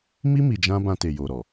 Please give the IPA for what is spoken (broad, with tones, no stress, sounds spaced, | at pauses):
m i˦ m i˧ d͡ʒ ã˦ b ã˧ t e˨ j o˨ ɾ ɔ˨